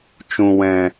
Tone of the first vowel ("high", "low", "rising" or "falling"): low